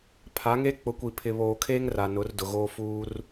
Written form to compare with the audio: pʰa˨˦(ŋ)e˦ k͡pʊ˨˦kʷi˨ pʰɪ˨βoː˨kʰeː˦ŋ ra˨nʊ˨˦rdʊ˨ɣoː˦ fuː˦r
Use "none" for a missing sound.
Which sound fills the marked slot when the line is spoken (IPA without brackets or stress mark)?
ŋ